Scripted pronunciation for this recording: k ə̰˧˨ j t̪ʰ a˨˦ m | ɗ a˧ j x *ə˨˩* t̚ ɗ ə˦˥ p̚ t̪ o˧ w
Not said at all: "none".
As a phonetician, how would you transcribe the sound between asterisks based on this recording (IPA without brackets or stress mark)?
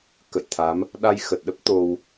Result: ə˨˩